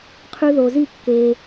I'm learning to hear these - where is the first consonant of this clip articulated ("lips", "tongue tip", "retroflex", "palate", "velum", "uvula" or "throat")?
uvula